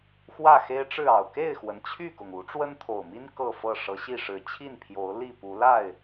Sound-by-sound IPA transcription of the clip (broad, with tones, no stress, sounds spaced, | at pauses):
x w ä˥˨ x e˦ ɪ̯ ʈ͡ʂ ɻ̩˥˨ ɑ˨˩ ʊ̯ k e˥˨ ɪ̯ x w ə˩ n t͡ɕʰ y˥˨ k ʊ˩ ŋ u˨˦ ʈ͡ʂ w ə˦ n t̪ʰ o˨˩ ʊ̯ m i˦ n k ɤ˥˨ f ɤ˥˨ ʂ ɤ˨˦ ɕ i˥˨ ʂ ɻ̩˨˩ t͡ɕʰ i˥˨ n pʰ j o˨˦ ʊ̯ l i˥˨ p u˨˦ l a˥˨ ɪ̯